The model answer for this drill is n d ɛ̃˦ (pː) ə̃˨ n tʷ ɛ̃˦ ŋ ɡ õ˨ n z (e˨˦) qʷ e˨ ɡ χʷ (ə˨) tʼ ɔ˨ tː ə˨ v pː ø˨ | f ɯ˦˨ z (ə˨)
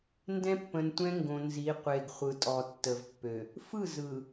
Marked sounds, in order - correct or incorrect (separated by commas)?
correct, incorrect, incorrect, incorrect